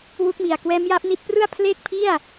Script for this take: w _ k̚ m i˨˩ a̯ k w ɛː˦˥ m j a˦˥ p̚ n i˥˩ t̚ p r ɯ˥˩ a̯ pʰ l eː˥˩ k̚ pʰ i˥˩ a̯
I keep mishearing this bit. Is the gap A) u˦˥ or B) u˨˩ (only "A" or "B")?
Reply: A